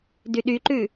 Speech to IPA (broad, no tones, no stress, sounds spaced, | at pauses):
d y ɗ y ǃ ʉ